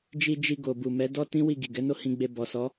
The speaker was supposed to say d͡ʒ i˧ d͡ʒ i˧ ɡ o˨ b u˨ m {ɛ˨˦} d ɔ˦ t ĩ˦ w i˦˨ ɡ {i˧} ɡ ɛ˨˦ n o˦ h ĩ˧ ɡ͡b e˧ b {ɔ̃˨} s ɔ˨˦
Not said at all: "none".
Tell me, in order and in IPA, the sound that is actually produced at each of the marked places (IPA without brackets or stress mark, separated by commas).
ɛ˨˦, i˨, ɔ˨